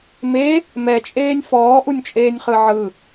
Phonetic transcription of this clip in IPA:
me | mɛt͡ʃʼeːnʲ fɔːʔunʲt͡ʃʼeːnʲχɯ ʕɯ

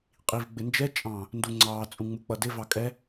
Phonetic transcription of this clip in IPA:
qʼiv ɡ͡bɪnd͡ʒɛ t͡ʃʼɑ̃ | nduŋ͡ǀɑː t͡sʼũŋ͡muk͡pʌdɪ vɑkʼɛ

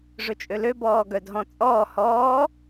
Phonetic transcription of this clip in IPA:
ʐɵt͡ʃʼøløbɔː ɡœdɦɔ̃t͡sʼɔː hɔː

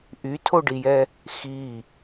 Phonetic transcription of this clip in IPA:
ʔytʰoɖijɛ | xi

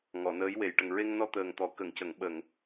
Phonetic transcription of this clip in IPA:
ŋɔ˨˩˨nəː˧˥jwe˨˩j ʈə˨˩ŋɹe˧ŋnɔ˧ t̪əː˨˩ŋt̪ɔ˨˩kə˨˩˨ŋcə˨˩˨ŋ ɓə˨˩˨ŋ

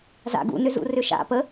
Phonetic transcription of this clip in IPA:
za̰ ɡṵnʏzṵrʏ ʃa̰ pə

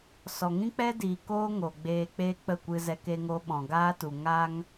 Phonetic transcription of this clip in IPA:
sɔ˨ŋĩ˦k͡pɛ˦diː˨ koː˦ŋo˨ɡ͡beː˧ k͡pe˦k͡pə˦˨kʷɨ˧zɛ˧k e˧ŋo˧ ɓɔ̃˨ɡaː˦tu˨ ŋa˧ŋ

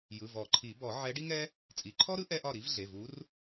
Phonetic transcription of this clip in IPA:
jɯ˩˧˩vɔ˨˩˦ǃʰi˨˩˦ bɔ˨˩˦ʕɛ˧˥ ɖi˥ŋɛ˥ | t͡sʼi˩˧˩ǃʰɔ˥ɾɯ˥ ʔɛ˥ʔɒ˥˩ ɾi˧˥v ɮe˩˧˩vu˧˥r

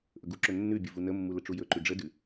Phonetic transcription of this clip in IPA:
ʔɵɡuǁɵ nːʉbʲu vunəmːu ləʈ͡ʂujɵǃʉ ɖ͡ʐədʉ

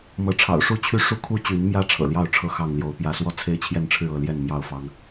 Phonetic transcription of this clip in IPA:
mɤ˨˦ ʈ͡ʂʰɑ̰˨˩ʊ̯ʂu˥˨ t͡ɕʰy˦ʂu˦kʰu˦ t͡ɕy˨˦nmjä˦ ʈ͡ʂʰɤ̰˨˩ljɑ˥˨ʊ̯ʈ͡ʂʰɤ˦ xɑ˥˨ŋljo˨˦ʊ̯pjä˦ swɔ˦t͡sʰe˦ɪ̯t͡ɕʰjɛ˥˨nʈ͡ʂʰɻ̩˥˨ ɤ˥˨ljɛ˥˨nmjɑ˥˨ʊ̯ fɑ˦ŋ

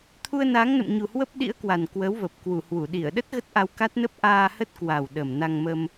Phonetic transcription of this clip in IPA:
t̪ʰu˧ə̯naː˨˦ŋnə̰˧˨mɲu˨˩ hwə˦˥p̚ɗḭ˧˥ə̯kwa˨˩n kwə˨˦wvə˨˩p̚ kwu˧˩hwu˧˩ɗi˧˩ə̯ɗə˦˥t̚ ɣə˦˥t̚ʔa˧wka˦˥t̚nə˦˥p̚ ʔaː˧hə˦˥t̚kwa˨˩w ɗə˨˩mna˧ŋmə˧m

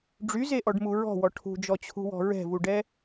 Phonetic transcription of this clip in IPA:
ɖ͡ʐyzeʔɔɖmu ɹɔ̤wɔ ʈʰṳd͡ʒɔt͡ɕʰṳwɔ̤ ɹɛ̤vuɖɛ

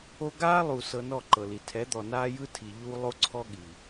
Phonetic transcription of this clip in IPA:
o˧ɡaː˦lˠu˨ sɤ˧nɔ˦˨ǃɤ˨li˨ tʰɛ˨˦d̪ɔ˨naː˦ jɯ˦ tʰi˨ ʎuː˧ lˠo˦ǀʰɔ˦ ɠi˨

